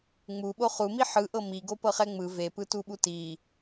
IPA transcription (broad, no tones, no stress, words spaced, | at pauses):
ŋ͡muɓo χumi ħɯʔɤ miɡopɤχɛ ŋ͡mɯ vepɯtuɓu ti